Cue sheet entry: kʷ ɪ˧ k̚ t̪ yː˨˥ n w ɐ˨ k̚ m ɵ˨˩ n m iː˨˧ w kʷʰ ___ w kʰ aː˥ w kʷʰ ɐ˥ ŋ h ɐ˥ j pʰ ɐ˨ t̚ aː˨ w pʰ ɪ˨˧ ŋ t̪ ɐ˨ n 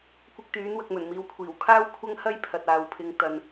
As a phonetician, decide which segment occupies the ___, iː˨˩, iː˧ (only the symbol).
iː˨˩